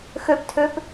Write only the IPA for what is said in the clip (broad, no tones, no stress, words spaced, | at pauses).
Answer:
xøptʰøp